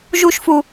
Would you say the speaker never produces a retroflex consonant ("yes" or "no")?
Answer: yes